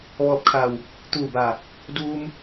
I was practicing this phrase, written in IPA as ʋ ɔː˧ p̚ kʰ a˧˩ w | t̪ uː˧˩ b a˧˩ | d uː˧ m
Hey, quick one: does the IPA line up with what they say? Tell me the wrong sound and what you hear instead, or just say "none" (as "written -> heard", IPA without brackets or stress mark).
none